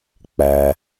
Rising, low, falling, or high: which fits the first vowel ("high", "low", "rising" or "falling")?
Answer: low